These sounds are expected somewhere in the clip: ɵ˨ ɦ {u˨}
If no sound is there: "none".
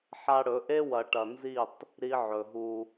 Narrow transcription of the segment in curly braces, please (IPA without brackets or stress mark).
u˦